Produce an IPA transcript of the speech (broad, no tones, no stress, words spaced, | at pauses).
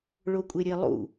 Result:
ɭokʷʼeɾʲelˠṵ